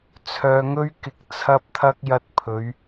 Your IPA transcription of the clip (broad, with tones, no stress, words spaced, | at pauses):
t͡sʰœː˨ŋɵ˧ɥkɪ˨k̚ t͡sʰɐ˧p̚t̪ʰɐ˧k̚ jɐ˧t̚pʰɵ˨˧ɥ